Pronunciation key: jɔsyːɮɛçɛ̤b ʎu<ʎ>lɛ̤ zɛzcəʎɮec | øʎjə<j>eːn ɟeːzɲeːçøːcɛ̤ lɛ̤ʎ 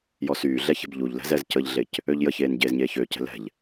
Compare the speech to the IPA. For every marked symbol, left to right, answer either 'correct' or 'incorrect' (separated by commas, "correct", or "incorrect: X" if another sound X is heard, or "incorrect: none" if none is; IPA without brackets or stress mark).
correct, incorrect: ç